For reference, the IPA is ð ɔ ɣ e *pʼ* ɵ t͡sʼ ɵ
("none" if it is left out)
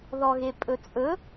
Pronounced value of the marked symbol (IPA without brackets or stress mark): pʼ